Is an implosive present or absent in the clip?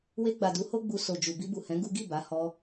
absent